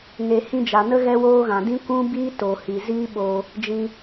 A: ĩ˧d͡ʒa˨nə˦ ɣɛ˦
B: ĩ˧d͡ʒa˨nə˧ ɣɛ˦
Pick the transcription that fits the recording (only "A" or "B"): A